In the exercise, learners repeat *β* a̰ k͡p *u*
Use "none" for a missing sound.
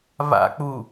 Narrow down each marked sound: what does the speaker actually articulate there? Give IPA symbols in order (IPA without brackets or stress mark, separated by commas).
β, u